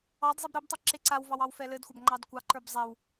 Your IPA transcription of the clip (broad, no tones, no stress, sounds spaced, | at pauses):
ɑ d zˤ i b ɾ ɘ b tˤ i ǁ e ǀ a w v ɑ w ɑ w f ɛ l ɘ d xʷ a b ŋ͡ǃ ɑ d kʷ ɑ ǃ ə˞ b zˤ ɛ w